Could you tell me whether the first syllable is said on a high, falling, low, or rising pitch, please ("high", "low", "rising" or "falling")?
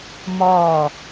falling